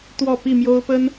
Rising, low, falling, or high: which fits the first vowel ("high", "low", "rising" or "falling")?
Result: falling